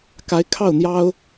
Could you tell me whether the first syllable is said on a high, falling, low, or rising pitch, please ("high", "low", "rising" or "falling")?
rising